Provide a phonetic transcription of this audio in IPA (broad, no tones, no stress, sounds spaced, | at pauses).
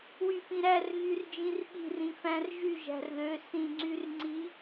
w y f ĩ ɾ æ r ɣ y r d͡ʒ ĩ r ɓ i̤ r ĩ f æ̃ r ʒ y ʒ æ̤ r ð ø s ĩ ŋ͡ǀ y r ŋ͡ǀ i